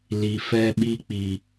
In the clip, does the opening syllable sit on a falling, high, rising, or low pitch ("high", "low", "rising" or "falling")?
low